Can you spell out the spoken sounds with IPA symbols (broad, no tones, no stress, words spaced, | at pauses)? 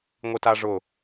ŋʷitaʐʊ